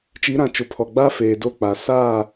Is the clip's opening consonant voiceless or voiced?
voiceless